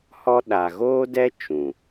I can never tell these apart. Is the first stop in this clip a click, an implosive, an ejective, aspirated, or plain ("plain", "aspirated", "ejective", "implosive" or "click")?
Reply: implosive